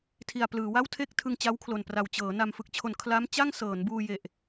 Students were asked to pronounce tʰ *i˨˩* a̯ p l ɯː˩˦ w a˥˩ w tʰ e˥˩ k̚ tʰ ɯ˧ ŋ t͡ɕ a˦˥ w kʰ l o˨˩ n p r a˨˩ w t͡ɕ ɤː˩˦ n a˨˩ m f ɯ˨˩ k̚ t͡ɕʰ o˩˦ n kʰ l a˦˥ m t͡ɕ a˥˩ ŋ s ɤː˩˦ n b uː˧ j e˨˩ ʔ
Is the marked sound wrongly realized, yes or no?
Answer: no